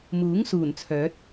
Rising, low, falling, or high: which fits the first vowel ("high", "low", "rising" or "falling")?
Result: rising